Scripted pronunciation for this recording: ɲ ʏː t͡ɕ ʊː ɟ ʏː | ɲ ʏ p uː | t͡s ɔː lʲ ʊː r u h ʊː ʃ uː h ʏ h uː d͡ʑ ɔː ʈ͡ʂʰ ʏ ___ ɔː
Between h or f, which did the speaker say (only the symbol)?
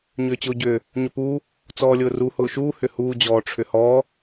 h